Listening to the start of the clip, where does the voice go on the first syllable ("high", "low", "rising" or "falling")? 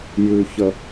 low